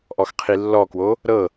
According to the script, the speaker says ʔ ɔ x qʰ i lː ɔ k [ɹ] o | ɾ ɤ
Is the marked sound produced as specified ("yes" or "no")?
no